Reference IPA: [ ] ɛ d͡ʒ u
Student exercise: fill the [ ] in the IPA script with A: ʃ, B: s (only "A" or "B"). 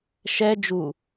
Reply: A